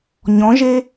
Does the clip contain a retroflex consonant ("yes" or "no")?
no